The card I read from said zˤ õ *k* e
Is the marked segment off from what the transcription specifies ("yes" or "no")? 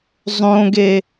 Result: yes